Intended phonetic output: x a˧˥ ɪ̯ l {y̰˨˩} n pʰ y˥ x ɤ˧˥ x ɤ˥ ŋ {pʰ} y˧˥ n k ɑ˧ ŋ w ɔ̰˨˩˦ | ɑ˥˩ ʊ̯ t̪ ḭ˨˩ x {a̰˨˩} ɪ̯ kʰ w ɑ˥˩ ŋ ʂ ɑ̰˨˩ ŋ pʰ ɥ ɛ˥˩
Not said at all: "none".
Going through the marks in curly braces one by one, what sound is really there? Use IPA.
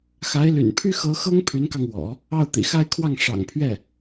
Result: y̰˨˩, pʰ, a˥˧

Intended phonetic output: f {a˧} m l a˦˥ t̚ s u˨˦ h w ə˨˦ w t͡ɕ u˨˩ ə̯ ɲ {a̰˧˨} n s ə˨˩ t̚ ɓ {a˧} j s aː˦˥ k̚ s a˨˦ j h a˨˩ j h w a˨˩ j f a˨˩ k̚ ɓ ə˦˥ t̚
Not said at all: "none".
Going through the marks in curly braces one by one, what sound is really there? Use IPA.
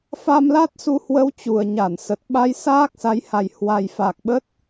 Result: a˧, a˧˩, a˧

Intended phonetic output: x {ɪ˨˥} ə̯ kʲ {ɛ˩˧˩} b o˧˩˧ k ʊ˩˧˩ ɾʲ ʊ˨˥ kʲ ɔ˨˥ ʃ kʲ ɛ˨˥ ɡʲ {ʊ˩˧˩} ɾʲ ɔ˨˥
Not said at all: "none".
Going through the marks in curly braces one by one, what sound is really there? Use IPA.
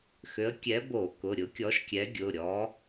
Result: ʏ˨˥, ɛ˨˥, ʊ˩˧˩

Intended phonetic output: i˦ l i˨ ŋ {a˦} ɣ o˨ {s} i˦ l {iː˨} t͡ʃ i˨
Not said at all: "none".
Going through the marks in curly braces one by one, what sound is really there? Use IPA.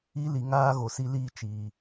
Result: aː˦, s, iː˦

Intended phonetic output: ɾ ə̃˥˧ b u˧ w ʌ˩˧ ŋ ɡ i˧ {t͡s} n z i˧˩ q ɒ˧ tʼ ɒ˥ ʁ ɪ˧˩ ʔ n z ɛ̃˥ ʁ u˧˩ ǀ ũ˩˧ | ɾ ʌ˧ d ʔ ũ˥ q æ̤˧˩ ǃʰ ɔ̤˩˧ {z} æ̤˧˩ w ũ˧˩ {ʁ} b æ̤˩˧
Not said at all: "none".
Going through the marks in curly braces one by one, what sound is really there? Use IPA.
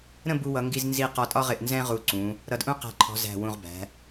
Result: z, z, ʁ

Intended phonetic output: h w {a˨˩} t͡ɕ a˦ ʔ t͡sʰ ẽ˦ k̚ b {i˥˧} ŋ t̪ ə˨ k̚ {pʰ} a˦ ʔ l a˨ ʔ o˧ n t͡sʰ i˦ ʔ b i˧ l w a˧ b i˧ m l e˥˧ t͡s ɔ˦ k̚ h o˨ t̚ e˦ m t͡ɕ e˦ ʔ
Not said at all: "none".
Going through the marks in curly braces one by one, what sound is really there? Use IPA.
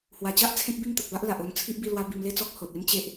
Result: a˨˩, i˥˧, b

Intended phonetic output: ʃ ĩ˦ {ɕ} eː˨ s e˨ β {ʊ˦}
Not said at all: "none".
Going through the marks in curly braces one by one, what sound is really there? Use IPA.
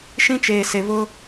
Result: t͡ʃ, ʊ˦

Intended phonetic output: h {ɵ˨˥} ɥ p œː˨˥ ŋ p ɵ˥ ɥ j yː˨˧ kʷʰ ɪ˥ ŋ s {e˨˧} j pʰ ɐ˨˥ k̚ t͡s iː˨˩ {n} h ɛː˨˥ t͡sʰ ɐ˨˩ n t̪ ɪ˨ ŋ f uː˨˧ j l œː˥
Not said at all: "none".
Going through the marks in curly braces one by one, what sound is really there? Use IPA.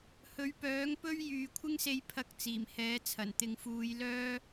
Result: ɵ˨˥, e˧, m

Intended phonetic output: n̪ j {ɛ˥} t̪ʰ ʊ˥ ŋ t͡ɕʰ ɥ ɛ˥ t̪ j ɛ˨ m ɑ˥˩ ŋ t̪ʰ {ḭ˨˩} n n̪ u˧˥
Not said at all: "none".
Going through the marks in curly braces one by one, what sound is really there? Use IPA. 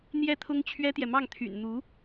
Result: ɛ˥˩, y̰˨˩

